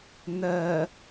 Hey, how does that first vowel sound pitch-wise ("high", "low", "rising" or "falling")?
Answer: low